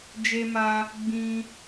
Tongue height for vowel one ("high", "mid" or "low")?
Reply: mid